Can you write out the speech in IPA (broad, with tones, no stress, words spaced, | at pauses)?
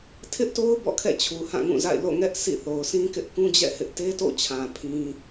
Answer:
tʰɪ˦ʔto˦ʊ̯ bɔ̰˦˨kʰɛ̰˦˨ t͡ɕʰu˨hã˦˨ŋũ˦˨ za̰˦˨ɪ̯ lo̰˦˨ŋɛ˦ʔ sḭ˦˨θo˨ʊ̯ sʰĩ˦kɪ˦ʔ kũ˦d͡ʑɛ̰˦˨hɪ˦ʔ te˦to̰˦˨t͡ɕʰã˨ pʰĩ˦